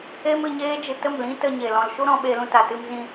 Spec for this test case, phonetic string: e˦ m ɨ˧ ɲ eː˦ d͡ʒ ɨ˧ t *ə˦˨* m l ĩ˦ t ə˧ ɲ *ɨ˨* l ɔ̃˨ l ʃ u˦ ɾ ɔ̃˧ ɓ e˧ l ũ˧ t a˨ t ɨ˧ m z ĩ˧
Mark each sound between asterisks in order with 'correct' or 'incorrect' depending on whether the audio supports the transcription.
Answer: correct, incorrect

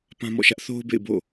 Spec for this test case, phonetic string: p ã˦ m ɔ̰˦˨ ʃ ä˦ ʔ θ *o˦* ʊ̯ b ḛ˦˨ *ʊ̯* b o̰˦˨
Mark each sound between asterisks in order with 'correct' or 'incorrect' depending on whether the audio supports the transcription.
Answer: correct, incorrect

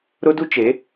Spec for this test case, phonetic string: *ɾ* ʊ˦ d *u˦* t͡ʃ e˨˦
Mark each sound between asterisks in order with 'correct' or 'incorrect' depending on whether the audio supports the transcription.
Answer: correct, correct

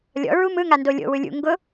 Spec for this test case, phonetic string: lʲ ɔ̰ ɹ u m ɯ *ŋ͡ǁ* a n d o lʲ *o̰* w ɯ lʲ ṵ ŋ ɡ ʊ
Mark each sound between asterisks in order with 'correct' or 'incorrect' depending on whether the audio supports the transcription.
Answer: incorrect, correct

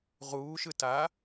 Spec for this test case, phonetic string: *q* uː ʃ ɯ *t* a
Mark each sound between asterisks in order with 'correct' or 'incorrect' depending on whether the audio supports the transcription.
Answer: incorrect, correct

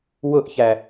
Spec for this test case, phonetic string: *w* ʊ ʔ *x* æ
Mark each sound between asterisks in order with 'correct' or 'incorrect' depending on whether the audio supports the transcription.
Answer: correct, incorrect

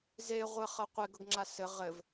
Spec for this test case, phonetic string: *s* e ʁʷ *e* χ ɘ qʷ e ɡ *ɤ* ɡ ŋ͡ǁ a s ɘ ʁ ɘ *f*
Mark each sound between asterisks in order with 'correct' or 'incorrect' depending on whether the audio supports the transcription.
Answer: incorrect, incorrect, correct, incorrect

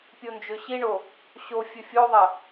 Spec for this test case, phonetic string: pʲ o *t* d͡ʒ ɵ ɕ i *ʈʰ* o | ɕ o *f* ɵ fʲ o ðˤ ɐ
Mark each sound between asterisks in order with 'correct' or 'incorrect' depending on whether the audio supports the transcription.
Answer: incorrect, incorrect, incorrect

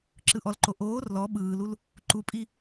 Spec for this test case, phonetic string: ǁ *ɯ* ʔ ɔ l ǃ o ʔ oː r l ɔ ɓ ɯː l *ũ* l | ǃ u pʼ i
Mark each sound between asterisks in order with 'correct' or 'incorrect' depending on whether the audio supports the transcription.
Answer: correct, incorrect

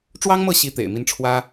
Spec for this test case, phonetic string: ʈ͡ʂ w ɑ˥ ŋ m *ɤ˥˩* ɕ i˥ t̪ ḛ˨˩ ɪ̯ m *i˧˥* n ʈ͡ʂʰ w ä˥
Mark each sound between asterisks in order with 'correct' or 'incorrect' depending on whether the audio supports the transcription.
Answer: correct, incorrect

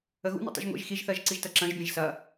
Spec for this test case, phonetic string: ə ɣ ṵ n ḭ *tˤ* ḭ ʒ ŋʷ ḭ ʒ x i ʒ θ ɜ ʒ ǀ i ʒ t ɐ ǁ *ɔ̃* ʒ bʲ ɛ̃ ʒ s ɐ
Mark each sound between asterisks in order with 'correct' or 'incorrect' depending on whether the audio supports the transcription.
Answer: correct, incorrect

